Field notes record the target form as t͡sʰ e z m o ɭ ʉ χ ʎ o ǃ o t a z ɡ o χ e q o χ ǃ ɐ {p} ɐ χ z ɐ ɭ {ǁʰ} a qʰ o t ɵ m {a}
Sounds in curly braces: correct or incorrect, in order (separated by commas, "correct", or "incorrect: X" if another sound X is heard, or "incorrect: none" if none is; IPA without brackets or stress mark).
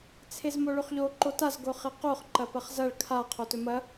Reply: correct, incorrect: kʰ, incorrect: ɐ